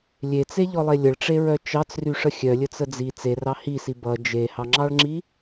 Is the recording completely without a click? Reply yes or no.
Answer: no